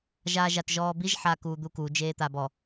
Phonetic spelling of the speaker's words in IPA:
ʒ aː ʒ a t ʒ ɔː b i ʒ ħ aː k uː d̪ u k u d͡ʒ eː t̪ a b ɔ

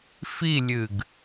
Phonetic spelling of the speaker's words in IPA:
f i lʲ ɨ ɡ

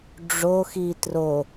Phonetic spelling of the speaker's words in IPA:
ɖ͡ʐ o x i t r o

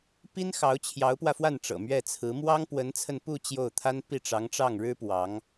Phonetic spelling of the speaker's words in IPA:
p i˥ n x ɑ˧˥ ʊ̯ t͡ɕʰ j ɑ˧˥ ʊ̯ p w ä˧ f w a˥˩ n ʈ͡ʂ ɤ̰˨˩ m ɥ ɛ˥˩ t͡sʰ ɹ̩˧˥ m w ɑ˥ ŋ p w ə˧˥ n t͡sʰ ə˧ n p u˥˧ t͡ɕ j o˥˩ ʊ̯ t̪ʰ a˥ n p i˥˩ ʈ͡ʂ ɑ˧˥ ŋ ʈ͡ʂ ɑ˥˩ ŋ ɻ ɻ̩˥ p w ɑ˧˥ ŋ

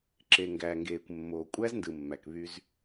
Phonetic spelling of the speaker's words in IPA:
ǁ e˨ ŋ ɡ æ˨ ŋ ɡ eː˨ kʷ mː oː˨ kʷʼ æ˦ z n d ɯ˨ mː æ˨ k β y˦ z

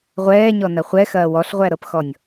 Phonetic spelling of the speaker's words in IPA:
ʁʷ ɛː ɲ ɔ n ɐ χʷ ɛ x ɐː w ɔ ɬ ʁʷ æ ɾ ɤ p x ɔ nʲ

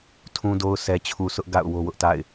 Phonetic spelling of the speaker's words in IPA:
tʰ ũ˨ d o˨ ʊ̯ sʰ ɛ˨ t͡ɕʰ u˨ sʰ ʊ˦ ʔ ɡ a̰˦˨ ʊ̯ w o˦ w ʊ˦ ʔ t a̰˦˨ ɪ̯

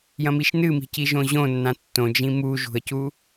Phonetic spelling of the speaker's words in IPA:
j ɐ̃ m i ʃ n ɨ m i̤ c i ʒ õ ʑ õ nː ã tː õ d͡ʒ ĩ m u ʒ ṳ ə̯ c u

